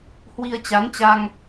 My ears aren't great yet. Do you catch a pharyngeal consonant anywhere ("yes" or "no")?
no